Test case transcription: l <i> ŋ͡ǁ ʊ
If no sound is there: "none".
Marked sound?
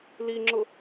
i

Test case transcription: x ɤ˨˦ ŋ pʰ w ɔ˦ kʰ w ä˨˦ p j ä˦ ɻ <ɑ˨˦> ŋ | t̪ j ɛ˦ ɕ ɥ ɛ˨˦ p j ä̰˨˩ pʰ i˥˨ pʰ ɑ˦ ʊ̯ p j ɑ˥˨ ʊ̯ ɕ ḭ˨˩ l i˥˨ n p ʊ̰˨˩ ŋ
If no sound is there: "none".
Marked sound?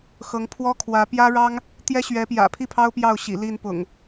ɑ˦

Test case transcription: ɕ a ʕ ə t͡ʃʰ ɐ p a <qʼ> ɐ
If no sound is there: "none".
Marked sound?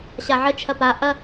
ʔ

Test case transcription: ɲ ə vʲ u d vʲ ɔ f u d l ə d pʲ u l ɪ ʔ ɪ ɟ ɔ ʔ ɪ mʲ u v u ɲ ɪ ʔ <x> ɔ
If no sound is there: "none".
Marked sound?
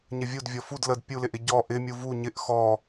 x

